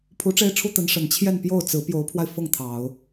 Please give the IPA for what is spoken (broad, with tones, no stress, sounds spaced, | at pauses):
pʰ u˧˥ ʈ͡ʂ e˥ ɪ̯ ʈ͡ʂʰ u˥ t̪ ə˧˥ n ʂ ə˨˩ n t͡ɕʰ j ɛ˥˧ n p j o˥˩ ʊ̯ t͡s ɹ̩˧˥ p j o˧˥ ʊ̯ pʰ w a˧ ɪ̯ f ɤ˥˩ ŋ t̪ʰ ɑ˨˩˦ ʊ̯